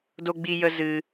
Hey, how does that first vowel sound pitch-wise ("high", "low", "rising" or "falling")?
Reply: high